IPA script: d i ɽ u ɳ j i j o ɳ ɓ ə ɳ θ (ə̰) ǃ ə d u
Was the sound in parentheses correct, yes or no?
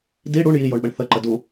no